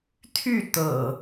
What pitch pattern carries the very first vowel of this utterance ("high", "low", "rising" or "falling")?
falling